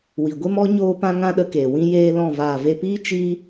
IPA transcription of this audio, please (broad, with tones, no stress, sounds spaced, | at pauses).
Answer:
w i˨ ɡʷ e˦ m ɔ˦ ɲ oː˦ p ã˦ ŋ ã˦ ɗ ə˧ k eː˨ w ĩ˦ j eː˦ l ɔ̃˦˨ v aː˨ v e˧ p iː˦ t͡ʃ iː˦